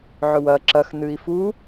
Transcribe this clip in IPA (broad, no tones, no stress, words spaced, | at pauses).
ʕɵwɐ ǁɐx nɨi̯fu